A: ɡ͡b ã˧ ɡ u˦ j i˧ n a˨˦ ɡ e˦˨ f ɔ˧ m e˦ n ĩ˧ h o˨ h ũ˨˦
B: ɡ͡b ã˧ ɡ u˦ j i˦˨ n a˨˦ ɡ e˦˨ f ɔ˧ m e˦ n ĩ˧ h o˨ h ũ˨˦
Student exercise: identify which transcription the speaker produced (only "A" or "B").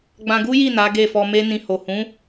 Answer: B